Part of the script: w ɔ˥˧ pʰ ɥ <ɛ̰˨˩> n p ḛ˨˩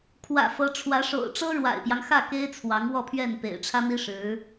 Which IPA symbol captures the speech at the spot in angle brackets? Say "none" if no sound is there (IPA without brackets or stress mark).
ɛ˥˩